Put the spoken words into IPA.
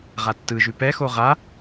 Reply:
ʁ a tː ɯ ʒ ʉ p ɛ x o ʁ a

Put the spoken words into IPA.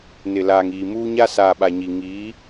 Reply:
n ɪ˨ l aː˨ ŋ iː˨ m uː˦ ɲ a˦ s aː˨ ɓ a˨ ɲ i˨ ŋ i˨˦

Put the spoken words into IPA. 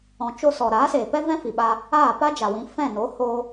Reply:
ɔ̃˨ t͡ʃ o˧ s ɔ˨ ɾ aː˨˦ s eː˨ p ɛ˦ v ɛ̃˦ f i˨ ɓ aː˧ | aː˦˨ p a˦ d͡ʒ a˨ w ĩ˨˦ f ɛ̃˦˨ n o˨˦ h oː˧

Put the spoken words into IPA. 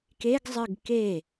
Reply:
k e ɡ zˤ ɨ ɡ k e

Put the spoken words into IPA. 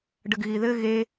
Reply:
ɖ ə ɡ ɣ i ð ɘ ɣ e

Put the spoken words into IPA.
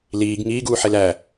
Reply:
l iː ɡ ŋ iː ɡ uː ħ e l æ

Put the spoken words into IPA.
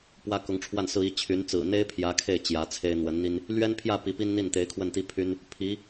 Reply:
p w ä˥ k ʊ˧˥ ŋ ʈ͡ʂʰ w a˥˩ n s ɹ̩˥ i˧˥ t͡ɕʰ y˧˥ n t͡s ɹ̩˨˩ n̪ e˥ ɪ̯ pʰ j ä˧˥ kʰ e˥˩ ɪ̯ t͡ɕ j ä˧˥ t͡sʰ e˥ ɪ̯ n̪ w ə˧˥ n n̪ i˥ n | l ɥ ɛ˥ n pʰ j ä˥˩ p i˧˥ p i˥ n n̪ i˥˩ n t̪ e˧˥ ɪ̯ kʰ w ə˥˩ n t̪ i˥ pʰ y˥ n | pʰ i˧˥

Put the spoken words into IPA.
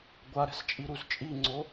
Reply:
ɡʷ a ɾ ɛ̤ s t͡ʃʼ i ɾ u z t͡ʃʼ i ŋ͡ǀ o

